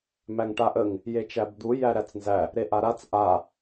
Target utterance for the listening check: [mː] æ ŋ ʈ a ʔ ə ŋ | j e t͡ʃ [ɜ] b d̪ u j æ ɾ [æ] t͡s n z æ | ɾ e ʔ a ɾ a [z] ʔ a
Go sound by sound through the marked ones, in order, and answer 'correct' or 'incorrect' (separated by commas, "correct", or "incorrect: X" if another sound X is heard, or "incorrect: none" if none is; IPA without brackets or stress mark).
incorrect: m, incorrect: æ, correct, incorrect: t͡s